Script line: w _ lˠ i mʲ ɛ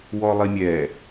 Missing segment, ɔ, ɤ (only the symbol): ɔ